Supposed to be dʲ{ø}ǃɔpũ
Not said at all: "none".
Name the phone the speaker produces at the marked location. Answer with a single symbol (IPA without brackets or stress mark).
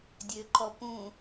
ø